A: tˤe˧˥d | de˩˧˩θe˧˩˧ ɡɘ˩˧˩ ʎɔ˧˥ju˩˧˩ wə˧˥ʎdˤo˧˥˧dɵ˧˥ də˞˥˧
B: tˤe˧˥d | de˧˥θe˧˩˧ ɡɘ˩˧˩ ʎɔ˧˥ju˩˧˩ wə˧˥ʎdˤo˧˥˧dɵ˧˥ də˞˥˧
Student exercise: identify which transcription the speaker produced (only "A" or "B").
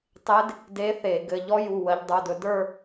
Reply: B